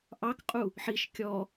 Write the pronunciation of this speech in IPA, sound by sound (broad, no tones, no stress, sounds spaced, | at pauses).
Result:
ʔ ɑ k qʼ u | ħ i ʃ kʲ ɔ